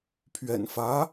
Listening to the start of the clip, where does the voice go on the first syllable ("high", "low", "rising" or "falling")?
low